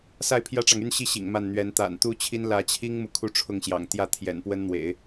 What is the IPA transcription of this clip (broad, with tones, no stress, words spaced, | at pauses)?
sa˥˩ɪ̯pʰjä˥ʈ͡ʂɑ˨ŋ y˥˧nɕi˥˩ ɕḭ˨˩ŋma˥˩nn̪ɥɛ˧˥n t̪a̰˨˩nt̪u˥t͡ɕʰi˥n lä˧˥t͡ɕʰi˥ŋmu˨ kʰu˥ʈ͡ʂʰʊ˥˩ŋɕjɑ̰˨˩ŋ t̪jä˥˩ t̪ʰjɛ̰˨˩npwə˥nn̪wḛ˨˩˦ɪ̯